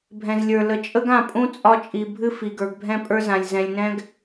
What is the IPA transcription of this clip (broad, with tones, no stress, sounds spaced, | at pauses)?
bʱ ɛ̃˨ z lʲ ə˞˨ l ə˨ t͡ʃʼ ə˦ ɡ ã˦˨ pʼ ũ˦ t͡sʼ ɒ˦ t͡ʃʼ i˨ bʱ ɨ˦ f i˨ ɡ ə˞˨ ɡ bʱ ɛ̃˦ pʼ ə˞˦ z ã˨ lʲ z ɛ̃˨ lʲ n ɛ̃˦ ɡ